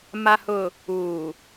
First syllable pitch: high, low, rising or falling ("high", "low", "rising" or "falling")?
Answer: low